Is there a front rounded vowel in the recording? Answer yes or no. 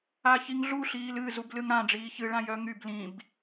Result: yes